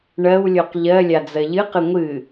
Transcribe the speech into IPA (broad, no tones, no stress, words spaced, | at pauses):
ɳɜwlʲoq ʎɜ lʲad͡zɜʎɨqɨ ŋʷɨ